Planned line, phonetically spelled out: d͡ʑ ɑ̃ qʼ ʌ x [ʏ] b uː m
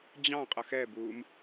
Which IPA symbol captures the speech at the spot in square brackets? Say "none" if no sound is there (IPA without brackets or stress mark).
ɛ